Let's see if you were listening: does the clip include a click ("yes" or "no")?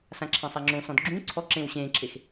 yes